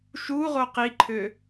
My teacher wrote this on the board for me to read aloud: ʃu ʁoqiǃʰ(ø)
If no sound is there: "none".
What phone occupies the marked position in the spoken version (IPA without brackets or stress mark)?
ø